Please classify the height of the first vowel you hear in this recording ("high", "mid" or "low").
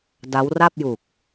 low